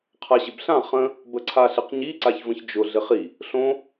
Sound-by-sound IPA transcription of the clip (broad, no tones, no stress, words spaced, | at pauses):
qʰaɕɪbɬã χə̃ | bəǀʰaɬɪqɲi ǀaçvə̃çd͡ʒʊ ɮɪχi | ɬõ